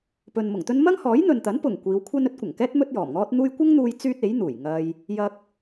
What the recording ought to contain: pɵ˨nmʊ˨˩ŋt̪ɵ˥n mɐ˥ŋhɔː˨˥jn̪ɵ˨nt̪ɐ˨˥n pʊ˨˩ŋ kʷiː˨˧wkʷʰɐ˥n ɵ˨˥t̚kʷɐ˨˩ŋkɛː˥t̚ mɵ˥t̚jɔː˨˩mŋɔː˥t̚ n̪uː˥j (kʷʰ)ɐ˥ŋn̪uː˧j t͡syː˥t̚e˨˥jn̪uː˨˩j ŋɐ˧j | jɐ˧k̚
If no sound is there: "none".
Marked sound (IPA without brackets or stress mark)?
kʷ